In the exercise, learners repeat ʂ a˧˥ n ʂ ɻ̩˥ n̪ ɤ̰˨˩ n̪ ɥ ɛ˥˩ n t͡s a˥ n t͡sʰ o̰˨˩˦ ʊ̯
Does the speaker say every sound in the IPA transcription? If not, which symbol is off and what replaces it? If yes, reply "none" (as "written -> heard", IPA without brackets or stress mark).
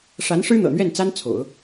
none